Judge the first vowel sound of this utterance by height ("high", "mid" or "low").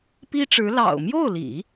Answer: high